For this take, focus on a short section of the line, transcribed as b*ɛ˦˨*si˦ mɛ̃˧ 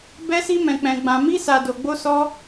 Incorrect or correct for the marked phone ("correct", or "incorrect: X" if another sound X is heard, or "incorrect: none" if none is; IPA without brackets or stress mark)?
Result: incorrect: ɛ˦